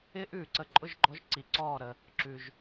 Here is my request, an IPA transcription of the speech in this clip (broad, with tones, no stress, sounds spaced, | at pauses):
ɪː˥ ʔ ʉː˩ ǀ ə˧˩ ǃʼ ʊ˥˩ ʒ ɡ͡ǃ ɔ˨˥ ʒ ǀ i˩ ǀ ɔː˧˩ ɾ ə˩ | ǁ ʉ˩ ʒ